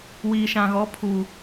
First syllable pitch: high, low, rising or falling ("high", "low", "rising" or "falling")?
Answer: low